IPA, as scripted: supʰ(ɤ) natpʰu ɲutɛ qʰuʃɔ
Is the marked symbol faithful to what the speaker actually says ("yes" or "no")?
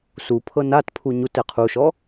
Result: yes